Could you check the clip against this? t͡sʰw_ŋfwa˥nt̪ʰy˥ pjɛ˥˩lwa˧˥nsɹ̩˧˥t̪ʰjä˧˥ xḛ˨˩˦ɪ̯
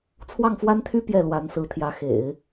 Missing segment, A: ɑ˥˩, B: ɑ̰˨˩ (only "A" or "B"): A